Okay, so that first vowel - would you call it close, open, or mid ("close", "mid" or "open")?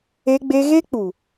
mid